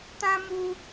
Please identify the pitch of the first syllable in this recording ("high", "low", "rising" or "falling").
high